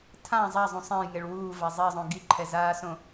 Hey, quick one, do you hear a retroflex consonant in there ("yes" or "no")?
yes